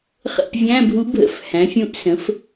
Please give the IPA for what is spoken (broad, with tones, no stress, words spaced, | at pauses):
χə̰˦˨pvʲæ̃˧˥˧bʱu˧˥bʱə̰˧˥˧f hæ̃˩˥fʲũ˧˥ʔsə̃˩˥f